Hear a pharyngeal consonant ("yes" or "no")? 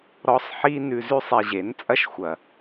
yes